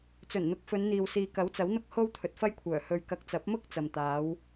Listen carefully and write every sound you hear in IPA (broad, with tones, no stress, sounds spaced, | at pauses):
t͡s ɵ˨˩ n n̪ ʊ˨˥ k̚ f ɵ˨˧ n n̪ iː˨ w s iː˨ k ɐ˨˥ w t͡s ɐ˨˥ w n̪ ʊ˥ k̚ h o˥ w t̪ʰ ɵ˨ t̚ f ɐ˥ j kʷʰ œː˨˩ h ɵ˧ ɥ k ɐ˧ k̚ t͡s ɐ˨˥ p̚ m ʊ˥ k̚ t͡s ɐ˨ m t̪ aː˨˥ w